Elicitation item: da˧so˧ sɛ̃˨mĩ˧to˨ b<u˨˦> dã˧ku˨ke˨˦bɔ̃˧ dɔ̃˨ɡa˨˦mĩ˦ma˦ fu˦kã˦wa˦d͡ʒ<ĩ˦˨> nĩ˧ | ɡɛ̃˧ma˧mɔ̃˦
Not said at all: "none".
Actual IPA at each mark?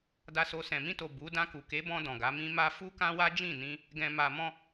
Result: u˨˦, ĩ˦˨

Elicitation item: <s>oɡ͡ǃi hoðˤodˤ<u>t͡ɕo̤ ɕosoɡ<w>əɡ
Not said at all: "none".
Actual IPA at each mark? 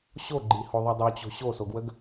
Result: ɕ, o, w

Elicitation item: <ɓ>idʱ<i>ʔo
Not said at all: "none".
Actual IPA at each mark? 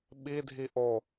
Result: ɓ, i

